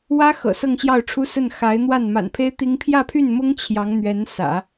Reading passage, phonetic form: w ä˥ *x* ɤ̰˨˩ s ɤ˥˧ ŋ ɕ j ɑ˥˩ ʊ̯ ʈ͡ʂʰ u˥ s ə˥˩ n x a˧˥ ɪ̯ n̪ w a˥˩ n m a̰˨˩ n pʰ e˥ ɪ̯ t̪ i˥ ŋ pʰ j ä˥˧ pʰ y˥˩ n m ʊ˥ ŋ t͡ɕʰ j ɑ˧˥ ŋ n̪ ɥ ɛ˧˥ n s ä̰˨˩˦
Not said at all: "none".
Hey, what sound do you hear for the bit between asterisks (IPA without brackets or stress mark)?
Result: x